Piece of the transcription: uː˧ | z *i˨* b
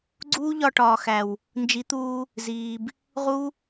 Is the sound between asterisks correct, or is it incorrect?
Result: incorrect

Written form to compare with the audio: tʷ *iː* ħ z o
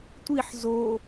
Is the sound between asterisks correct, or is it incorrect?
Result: incorrect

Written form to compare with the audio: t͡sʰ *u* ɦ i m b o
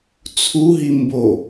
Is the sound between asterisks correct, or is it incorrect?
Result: correct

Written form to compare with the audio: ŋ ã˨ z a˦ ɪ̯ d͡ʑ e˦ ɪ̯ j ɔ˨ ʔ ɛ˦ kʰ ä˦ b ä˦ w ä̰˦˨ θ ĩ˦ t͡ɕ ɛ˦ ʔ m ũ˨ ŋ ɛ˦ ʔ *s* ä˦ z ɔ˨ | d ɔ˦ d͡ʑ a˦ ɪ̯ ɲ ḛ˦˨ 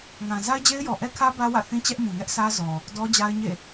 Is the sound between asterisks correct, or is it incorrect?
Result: correct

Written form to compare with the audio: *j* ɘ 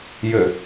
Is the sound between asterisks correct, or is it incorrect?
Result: correct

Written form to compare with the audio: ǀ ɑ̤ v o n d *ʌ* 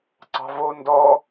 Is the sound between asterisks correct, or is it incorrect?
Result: incorrect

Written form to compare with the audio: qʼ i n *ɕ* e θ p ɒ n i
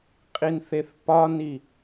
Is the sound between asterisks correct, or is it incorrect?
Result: incorrect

